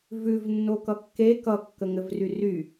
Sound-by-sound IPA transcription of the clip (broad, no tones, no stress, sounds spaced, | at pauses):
v ʉ v nː o k ʌ kː e k ʌ kː ə ŋ ɘ v r y r y